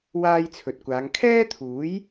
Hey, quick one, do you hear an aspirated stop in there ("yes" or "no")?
yes